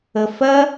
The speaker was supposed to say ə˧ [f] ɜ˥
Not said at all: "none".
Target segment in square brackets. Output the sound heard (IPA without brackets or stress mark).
f